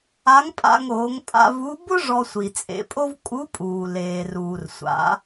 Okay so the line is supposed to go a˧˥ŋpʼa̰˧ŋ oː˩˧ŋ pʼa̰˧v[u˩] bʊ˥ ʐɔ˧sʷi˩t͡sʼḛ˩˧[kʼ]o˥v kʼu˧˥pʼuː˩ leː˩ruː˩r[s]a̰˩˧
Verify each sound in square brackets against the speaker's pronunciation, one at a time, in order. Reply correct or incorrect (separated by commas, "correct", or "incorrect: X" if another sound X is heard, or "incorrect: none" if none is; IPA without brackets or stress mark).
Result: incorrect: u˧˥, incorrect: pʼ, incorrect: sʷ